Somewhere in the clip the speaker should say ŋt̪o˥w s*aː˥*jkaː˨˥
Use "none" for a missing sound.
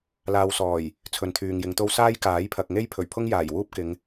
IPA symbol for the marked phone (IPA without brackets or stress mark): aː˥